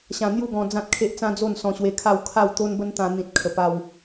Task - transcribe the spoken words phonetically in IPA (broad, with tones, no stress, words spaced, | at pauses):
ɕã˧n̪ju˥˧ɡɔ̃˧ d͡zã˦t̚kʰe˦ʔt͡sã˦ d͡zo˥˧n sɔ̃˧ɕwe˧kʰa˥˧w kʰa˥˧wt̪o˦nbə˦n t̪ã˧n̪ĩ˨t̚ kʰə˨˩pa˧w